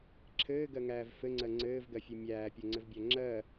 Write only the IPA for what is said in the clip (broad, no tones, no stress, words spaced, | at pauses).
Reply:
ǁʰɘːɡɜŋæːv fɘŋ͡ǀɜ ŋ͡ǀɘːvɡɜfʲɘ mʲæːpʲoŋ͡ǀɘvbʲæ ŋ͡ǁɜ